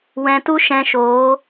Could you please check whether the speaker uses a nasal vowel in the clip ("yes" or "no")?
yes